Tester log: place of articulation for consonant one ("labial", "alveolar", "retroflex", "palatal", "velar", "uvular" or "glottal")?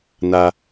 alveolar